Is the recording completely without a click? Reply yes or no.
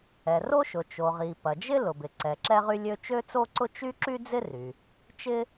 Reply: no